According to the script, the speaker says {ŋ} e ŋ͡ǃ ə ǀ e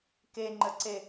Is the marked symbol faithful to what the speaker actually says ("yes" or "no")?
no